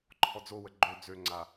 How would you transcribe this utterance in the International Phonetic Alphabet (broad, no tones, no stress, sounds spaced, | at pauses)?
ǃʰ ɔ d͡z o w ə ɡ͡ǃ ø d͡z ø ŋ͡ǀ a